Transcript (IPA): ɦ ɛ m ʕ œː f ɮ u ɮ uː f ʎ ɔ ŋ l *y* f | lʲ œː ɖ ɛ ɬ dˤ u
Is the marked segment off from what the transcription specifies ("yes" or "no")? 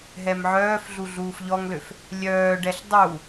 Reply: yes